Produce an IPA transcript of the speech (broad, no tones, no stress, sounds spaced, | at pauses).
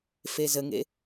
f e z ə ŋ ḛ